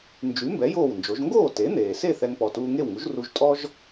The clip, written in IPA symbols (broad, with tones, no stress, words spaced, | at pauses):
nd͡ʒy˩˥mbɛ˩˥ joː˥˩wnd͡ʒo˩˥ʒ ŋɡoː˥˩ te˩˥n̪eː˩se˥˩ θɛ˧ŋpɔ˩tuː˧ŋe˥˩w ŋu˩˥ʒru˧ʒtʼɔ˥ʒ